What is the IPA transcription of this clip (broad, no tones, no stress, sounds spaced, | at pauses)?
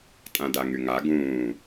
tʼ ã d a ŋ y ŋ a ɡ ũː